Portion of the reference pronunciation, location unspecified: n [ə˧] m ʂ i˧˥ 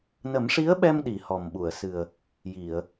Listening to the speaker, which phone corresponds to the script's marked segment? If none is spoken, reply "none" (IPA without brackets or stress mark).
ə˨˩˦